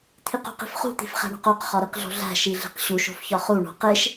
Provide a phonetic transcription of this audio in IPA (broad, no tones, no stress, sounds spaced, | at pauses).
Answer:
t̪ʰ i q ṳ q i̤ f χ ṳ t̪ i̤ f χ æ̤ ɳ o̤ q o q χ ɒ ɾ i q ɮ o̤ ɮ æ̤ ʃ i ɮ i̤ q ɕ u ʃ o̤ f ç ɒ χ u ɳ o̤ q e ʃ